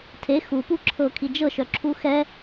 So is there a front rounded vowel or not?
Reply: yes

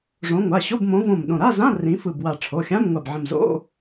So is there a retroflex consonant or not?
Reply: yes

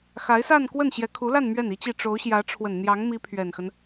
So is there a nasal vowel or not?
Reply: no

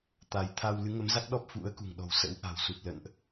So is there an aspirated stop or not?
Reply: yes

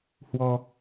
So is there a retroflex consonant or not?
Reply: no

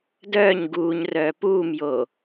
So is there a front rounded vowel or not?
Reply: yes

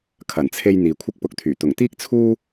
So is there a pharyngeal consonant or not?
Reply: no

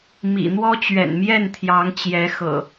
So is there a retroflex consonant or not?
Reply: no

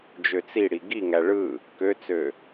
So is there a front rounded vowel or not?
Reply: yes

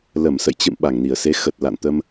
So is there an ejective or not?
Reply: no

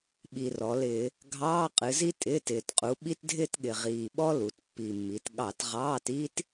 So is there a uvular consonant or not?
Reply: yes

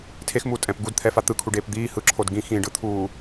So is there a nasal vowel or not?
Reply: yes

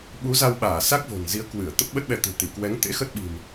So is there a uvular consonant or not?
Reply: no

